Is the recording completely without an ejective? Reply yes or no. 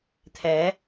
yes